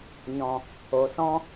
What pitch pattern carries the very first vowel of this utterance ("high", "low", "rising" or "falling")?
low